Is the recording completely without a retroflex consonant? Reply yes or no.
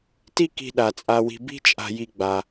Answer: yes